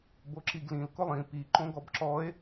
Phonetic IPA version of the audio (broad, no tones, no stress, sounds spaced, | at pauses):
b o ǁ i ɡ l ĩ l k ʊ lˠ ĩ p i ǃ õ ɡ ɔ b ǁ ɔ e̯